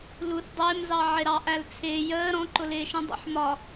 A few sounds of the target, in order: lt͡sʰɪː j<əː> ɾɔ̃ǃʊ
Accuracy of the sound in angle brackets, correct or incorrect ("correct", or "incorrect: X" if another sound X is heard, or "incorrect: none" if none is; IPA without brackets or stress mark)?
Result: correct